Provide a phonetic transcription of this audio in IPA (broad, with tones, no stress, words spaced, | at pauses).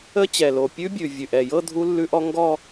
ə˦˥t͡ɕɛ˨˩lo˨˩ pʲʉ˦˥bʲʉ˨˩ vʲʉ˨˩ʔɛ˨˩jɤ˥˧ dʱu˦˥lːʉ˦˥ʔɔ˦˥ ŋɡɔ˥˧